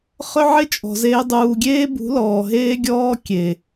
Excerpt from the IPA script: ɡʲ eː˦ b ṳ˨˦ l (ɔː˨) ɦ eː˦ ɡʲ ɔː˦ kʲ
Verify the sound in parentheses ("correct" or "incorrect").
correct